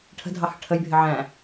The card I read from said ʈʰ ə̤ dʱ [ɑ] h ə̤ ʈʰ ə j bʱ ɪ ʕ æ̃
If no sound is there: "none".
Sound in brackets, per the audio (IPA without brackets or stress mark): ɑ